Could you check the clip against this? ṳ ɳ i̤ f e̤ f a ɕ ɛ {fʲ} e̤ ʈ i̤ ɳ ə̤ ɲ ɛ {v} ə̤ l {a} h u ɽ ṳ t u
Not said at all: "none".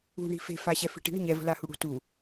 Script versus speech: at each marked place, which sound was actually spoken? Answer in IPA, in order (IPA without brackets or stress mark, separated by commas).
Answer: f, v, a